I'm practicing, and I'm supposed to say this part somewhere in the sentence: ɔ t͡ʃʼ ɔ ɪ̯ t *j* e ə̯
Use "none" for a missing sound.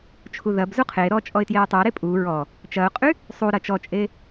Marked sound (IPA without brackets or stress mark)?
j